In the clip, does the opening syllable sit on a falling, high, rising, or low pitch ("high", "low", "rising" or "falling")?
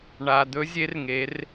low